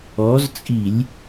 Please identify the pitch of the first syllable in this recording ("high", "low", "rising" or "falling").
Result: rising